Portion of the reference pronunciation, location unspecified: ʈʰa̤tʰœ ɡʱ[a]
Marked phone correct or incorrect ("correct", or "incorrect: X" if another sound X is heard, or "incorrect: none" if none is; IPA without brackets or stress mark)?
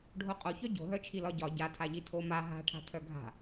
incorrect: a̤